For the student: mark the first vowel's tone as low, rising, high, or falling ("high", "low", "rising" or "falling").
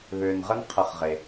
low